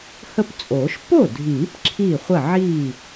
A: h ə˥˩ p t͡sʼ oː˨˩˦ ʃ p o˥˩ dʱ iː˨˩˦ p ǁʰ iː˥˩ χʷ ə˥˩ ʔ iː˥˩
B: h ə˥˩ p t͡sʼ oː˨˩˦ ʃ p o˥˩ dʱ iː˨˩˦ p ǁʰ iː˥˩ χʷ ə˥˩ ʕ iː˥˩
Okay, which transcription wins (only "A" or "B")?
B